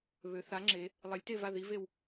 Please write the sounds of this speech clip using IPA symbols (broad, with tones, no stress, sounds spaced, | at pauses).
β ø˩˧ θ a˨˥ ŋ͡ǁ e˩˧ | lˠ e˨˥ lʲ t e˥˨ v a˥˨ ð i˨˥ v e˥˨ w